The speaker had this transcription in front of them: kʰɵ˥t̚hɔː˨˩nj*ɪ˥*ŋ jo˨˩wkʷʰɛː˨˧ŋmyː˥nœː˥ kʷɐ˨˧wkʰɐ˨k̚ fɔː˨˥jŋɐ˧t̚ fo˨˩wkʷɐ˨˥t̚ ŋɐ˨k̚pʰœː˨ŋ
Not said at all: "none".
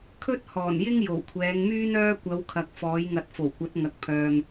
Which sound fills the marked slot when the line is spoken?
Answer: ɪ˥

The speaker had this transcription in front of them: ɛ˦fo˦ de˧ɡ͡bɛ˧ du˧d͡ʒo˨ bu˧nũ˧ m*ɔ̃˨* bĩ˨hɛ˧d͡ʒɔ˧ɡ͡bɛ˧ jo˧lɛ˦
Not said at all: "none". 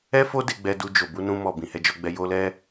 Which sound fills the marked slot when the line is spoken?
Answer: ɔ˨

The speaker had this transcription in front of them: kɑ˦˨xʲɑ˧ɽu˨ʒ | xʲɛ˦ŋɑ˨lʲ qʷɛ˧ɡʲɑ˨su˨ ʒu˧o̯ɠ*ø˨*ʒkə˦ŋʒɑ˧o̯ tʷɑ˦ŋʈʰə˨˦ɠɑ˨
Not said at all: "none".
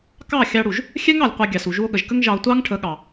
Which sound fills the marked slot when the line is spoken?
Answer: ə˨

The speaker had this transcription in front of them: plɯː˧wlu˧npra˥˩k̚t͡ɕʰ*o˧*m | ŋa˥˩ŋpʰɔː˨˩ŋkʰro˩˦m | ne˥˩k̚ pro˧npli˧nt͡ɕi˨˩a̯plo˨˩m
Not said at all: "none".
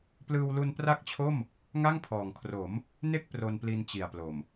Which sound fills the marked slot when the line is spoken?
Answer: o˥˩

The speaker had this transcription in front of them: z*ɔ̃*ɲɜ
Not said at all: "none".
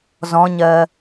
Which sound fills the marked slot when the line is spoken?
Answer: ɔ̃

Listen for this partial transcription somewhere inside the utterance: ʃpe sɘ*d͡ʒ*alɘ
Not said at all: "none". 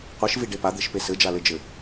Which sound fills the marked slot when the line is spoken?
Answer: d͡ʒ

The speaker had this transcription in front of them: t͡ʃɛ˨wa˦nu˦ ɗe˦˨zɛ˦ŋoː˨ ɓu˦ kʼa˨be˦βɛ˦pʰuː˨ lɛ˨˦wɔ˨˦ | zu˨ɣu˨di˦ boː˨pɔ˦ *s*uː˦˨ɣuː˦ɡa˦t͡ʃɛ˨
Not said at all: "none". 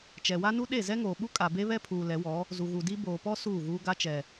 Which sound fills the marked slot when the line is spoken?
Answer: s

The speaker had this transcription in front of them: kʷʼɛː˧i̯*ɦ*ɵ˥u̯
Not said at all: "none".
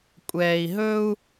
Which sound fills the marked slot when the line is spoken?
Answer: ɦ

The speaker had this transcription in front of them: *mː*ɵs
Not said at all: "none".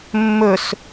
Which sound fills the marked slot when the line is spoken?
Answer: mː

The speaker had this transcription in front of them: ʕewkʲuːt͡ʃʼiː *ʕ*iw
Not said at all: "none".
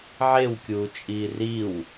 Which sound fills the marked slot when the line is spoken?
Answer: r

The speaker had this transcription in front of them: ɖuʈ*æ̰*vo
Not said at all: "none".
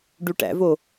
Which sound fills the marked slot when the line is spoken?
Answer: æ̰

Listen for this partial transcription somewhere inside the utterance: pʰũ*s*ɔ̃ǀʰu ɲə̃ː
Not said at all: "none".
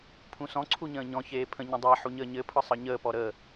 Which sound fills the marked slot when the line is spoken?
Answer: s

